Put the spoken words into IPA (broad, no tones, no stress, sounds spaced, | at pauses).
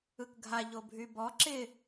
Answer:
ɯ k ɡʱ a ʎ o bʱ y b ɔ ǁ ɪ